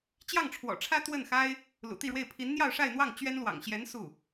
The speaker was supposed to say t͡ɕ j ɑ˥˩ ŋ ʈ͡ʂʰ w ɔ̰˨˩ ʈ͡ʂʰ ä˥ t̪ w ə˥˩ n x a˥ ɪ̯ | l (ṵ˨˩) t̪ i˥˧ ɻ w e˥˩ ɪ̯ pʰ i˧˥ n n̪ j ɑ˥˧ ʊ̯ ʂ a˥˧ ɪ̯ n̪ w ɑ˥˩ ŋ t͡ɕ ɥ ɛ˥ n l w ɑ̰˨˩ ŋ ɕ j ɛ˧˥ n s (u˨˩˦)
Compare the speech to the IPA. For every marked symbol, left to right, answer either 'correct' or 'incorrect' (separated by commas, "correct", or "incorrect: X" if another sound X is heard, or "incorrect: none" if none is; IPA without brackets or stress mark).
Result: correct, incorrect: u˥˩